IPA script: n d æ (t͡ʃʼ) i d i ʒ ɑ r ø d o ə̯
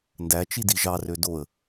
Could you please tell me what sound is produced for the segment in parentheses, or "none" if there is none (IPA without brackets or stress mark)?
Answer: t͡ʃ